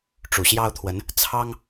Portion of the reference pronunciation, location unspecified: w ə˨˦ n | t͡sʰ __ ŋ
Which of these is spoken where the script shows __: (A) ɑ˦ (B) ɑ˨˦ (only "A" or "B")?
A